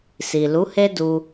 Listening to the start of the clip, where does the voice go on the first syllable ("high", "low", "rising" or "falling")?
low